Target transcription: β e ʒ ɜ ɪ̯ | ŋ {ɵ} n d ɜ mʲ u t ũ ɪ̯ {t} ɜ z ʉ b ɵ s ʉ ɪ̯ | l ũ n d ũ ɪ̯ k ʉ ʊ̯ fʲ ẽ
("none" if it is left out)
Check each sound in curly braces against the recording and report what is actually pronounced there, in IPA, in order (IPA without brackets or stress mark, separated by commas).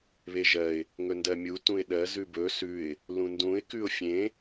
ɵ, ɗ